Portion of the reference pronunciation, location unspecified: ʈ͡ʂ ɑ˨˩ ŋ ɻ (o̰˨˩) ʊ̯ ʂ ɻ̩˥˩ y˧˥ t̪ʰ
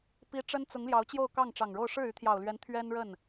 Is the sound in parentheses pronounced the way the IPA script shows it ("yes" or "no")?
no